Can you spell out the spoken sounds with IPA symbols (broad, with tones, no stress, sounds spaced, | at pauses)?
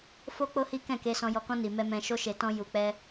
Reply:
f o˦ k͡p o˦ h i˦ k ɛ̃˦˨ k e˧ s ɔ̃˧ j ɔ˧ k ɔ̃˦ n i˧ m ɛ˦ m ɛ̃˧ ʃ o˦ ʃ e˧ t ɔ̃˦ j u˧ k͡p ɛ˦